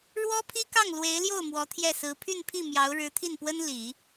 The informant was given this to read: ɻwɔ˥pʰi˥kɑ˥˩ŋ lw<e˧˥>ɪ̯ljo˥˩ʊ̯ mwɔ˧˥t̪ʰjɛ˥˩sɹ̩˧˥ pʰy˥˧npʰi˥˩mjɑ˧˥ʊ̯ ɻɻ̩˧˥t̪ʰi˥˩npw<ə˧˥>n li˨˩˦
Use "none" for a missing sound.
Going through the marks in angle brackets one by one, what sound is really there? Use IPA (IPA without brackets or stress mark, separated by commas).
e˧˥, ə˥